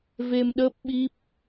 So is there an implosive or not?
yes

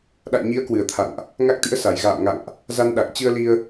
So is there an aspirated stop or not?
yes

